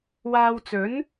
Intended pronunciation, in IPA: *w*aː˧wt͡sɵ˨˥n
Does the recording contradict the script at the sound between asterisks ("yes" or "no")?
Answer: no